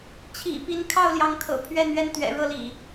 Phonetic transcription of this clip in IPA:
t͡ɕʰḭ˨˩ pi˨˦n kʰɑ˥˨ʊ̯ljɑ˨˦ŋkʰɤ̰˨˩ pʰɥɛ˥˨n ɥɛ˥˨nt̪ɥɛ̰˨˩ɻɤ˥˨ lḭ˨˩

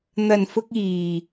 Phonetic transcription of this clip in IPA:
n̪ɐ˨˩nfʊ˧k̚ iː˨˩

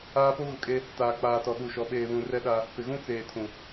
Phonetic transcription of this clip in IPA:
aː˦po˦ɣʊ˨kʼe˦ | taː˨k͡paː˨ tɔ˨ɗu˨ʃɔ˨˦ ɓeː˨βũ˨rɛ˦ɗa˦ | pɪ˨ɣũ˦ t͡seː˨tʰũ˨

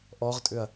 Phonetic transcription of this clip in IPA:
ʔɔʁtʼʏɐ̯

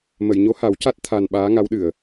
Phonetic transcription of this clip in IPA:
mə˨˩˨jɲo˧˥ha˨˩˦wca˦˥t̚ t̪ʰa˧n ɓaː˧˥ŋa˧˥wɗɨ˨˩˨ə̯

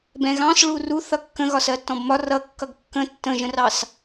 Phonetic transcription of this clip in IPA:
bɛ̃ɣɑ̃s ɭuru θʌkːə̃ɣɒ sɜtːɔ̃bmɒ rʌ kːʌɡkːə̃ tːə̃ʒə̃rɑs

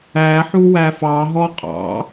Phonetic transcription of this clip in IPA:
æħu wæfɑɦɔ qʼɑ̰

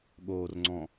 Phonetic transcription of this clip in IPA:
ɠoːrŋ͡ǀɔ̃

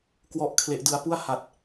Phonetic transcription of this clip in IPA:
kwɔ˦˥ʔ kʰle˦˥ʔdɯ˦˥a̯ pu˥˩a̯ha˨˩t̚

